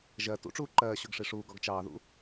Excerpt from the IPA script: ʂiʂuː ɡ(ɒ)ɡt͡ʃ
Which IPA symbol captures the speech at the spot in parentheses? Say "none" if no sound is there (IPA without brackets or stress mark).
ɒ